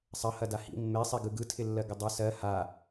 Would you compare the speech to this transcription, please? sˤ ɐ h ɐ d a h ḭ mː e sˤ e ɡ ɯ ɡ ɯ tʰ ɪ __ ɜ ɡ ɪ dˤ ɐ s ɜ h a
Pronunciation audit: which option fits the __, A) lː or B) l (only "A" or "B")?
A